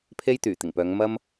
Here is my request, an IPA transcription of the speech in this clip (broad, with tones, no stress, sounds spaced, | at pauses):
pʰ e˥ j t̪ yː˨˩ t̪ ɪ˨˩ ŋ p œː˨˧ ŋ m ɐ˥ m